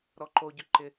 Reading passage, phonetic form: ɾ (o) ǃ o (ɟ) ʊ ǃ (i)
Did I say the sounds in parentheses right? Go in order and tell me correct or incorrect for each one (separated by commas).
incorrect, correct, incorrect